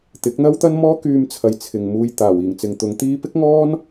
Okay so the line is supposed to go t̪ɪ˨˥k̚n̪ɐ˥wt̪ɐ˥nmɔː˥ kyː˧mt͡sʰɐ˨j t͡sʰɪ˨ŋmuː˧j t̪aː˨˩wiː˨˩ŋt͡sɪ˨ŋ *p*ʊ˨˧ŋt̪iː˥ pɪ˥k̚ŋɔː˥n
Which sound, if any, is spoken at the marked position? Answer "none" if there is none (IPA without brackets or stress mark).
t̪